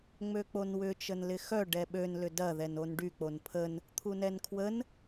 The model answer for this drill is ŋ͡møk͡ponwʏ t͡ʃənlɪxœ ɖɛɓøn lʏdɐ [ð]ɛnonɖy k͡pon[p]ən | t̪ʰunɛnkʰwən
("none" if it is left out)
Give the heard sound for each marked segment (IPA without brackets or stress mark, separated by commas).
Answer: ð, pʰ